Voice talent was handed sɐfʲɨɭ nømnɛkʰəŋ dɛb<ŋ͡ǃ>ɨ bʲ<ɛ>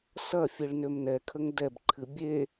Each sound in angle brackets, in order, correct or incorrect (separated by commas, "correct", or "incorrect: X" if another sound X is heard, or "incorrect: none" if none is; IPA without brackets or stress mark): incorrect: ǃʰ, incorrect: e